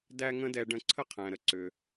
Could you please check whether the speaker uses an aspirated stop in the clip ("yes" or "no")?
yes